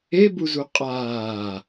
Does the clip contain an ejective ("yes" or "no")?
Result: yes